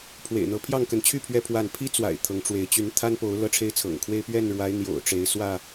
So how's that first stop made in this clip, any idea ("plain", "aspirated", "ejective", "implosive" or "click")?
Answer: aspirated